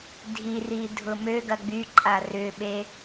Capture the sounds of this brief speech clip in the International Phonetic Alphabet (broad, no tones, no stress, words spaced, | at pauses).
dʱiri dʱʊmøɡɐ ɡ͡byǃʼa rʏɓe